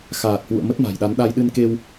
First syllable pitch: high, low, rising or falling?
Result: low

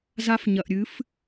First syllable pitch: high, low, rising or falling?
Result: high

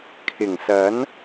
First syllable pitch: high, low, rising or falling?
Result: low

